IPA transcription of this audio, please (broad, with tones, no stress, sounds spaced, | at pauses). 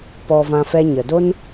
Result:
p ɔ˧ v ã˧ f ɛ˧ ɲ ə˨ d o˦ n